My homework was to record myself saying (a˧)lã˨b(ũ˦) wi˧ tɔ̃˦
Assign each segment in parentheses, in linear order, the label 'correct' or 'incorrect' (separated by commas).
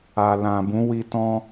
incorrect, incorrect